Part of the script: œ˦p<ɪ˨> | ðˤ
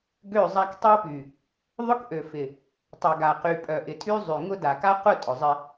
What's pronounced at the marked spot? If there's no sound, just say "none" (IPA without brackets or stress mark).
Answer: y˨